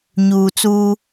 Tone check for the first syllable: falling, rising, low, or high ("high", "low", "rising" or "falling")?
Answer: low